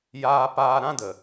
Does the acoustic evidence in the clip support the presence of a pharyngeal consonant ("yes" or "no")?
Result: no